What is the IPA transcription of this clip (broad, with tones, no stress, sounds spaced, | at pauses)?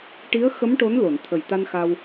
ʈ i˧˥ ə̯ x ə˧˥ m ʈ o˧˥ n l o˨˩˨ n t̪ʰ ə˨˩ j t̪ a˧ n x a˧ w